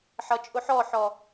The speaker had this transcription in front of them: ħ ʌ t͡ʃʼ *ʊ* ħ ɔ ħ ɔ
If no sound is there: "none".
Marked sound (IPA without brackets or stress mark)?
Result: ʊ